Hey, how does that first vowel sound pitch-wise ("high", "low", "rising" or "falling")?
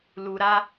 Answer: low